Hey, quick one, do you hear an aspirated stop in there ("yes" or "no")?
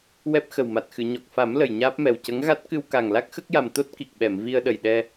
no